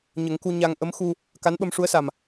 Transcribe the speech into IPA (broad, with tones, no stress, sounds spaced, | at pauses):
ɲ ə˨˩˦ ŋ k u˧ ɲ a˧ ŋ ʔ ə˧˥ m x u˧ | k a˧˥ n ɓ ə˧ m ʂ u˧˥ ə̯ s a˨˩ m